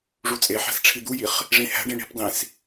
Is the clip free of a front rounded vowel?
yes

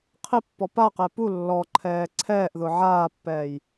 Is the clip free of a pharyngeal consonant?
no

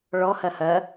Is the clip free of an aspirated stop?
yes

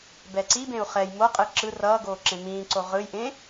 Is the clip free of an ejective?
no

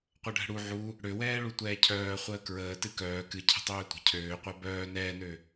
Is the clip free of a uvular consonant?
no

